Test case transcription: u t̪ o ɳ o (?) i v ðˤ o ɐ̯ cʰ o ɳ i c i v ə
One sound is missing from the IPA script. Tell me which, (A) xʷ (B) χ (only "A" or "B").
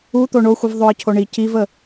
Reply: A